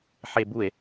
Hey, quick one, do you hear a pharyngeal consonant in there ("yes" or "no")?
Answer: yes